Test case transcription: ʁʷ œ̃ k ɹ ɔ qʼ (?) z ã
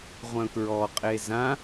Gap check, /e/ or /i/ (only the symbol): e